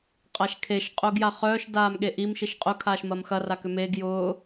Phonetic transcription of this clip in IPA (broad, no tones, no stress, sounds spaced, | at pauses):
qʼ a ʃ kʰ e ʃ qʼ ʊː ɡ j a χ œː ʃ d aː m ɠ e ʔ i m ʃ i ʃ qʼ ʊ kʰ aː ʃ m ɐ m x ɐ r a k ʏ m e ɡ j ʊː